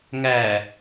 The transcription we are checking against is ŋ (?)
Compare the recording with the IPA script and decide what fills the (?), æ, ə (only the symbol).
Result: æ